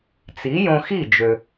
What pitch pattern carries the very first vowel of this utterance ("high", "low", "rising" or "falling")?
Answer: rising